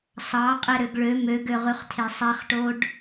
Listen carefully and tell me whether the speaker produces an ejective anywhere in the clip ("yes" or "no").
yes